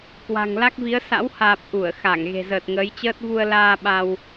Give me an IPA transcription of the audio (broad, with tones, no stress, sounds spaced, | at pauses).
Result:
k w a̤˨˩ ŋ l a˦˥ k̚ v i˨˦ ə̯ s a̰˧˥ w h aː˨˩ p̚ ʔ u˧˩ ə̯ x a˧˩ ŋ ɣ e̤˨˩ z əː˨˩ t̚ ŋ əː˨˦ j t͡ɕ əː˦˥ t̚ v u˧ ə̯ l aː˧ ɓ a˧ w